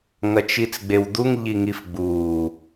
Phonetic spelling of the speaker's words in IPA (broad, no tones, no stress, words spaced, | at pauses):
ŋɐt͡ʃit͡sɡ͡bewd̪uŋ ʎiŋifɡ͡buː